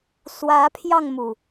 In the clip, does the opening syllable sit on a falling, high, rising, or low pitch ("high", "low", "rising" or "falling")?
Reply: rising